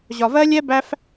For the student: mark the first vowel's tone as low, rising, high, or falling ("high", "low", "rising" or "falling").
low